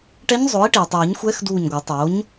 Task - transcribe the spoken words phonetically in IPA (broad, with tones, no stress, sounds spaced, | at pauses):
ʈ ɛ˧˥ ɲ zˤ o˩˥ i̯ ʈ iː˩ tˤ ɯː˨˩˦ ɲ xʷ ɛː˧˥ x d uː˧˩ ɲ ɡʷ a˨˩˦ tˤ oː˩˥ ɲ